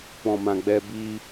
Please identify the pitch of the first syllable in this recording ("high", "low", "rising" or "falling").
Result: low